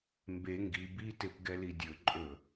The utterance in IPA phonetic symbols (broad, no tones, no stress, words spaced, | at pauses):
mbe ŋɡi bitep ɡɛlidʲɵǃʼɵ